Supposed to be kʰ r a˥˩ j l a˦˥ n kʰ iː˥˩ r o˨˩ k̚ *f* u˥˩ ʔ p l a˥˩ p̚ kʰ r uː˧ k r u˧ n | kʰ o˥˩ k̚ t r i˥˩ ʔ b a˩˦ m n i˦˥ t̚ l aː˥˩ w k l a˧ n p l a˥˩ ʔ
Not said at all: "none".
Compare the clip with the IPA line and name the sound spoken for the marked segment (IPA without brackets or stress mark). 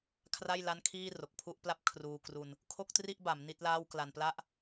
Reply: pʰ